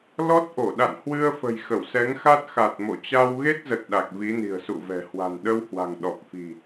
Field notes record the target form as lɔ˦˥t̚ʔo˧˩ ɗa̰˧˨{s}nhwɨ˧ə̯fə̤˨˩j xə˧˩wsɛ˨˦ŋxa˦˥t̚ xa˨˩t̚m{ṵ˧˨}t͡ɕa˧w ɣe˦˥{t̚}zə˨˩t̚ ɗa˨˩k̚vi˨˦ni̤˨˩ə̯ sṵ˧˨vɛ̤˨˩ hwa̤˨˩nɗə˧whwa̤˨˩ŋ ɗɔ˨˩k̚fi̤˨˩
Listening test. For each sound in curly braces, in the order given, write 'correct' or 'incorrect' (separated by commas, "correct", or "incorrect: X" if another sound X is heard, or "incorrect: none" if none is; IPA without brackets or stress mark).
incorrect: none, incorrect: o̰˧˨, correct